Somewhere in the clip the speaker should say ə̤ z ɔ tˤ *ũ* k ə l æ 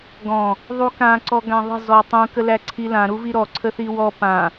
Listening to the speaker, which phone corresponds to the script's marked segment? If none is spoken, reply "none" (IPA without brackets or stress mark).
ũ